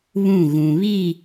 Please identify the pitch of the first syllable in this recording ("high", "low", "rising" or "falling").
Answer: falling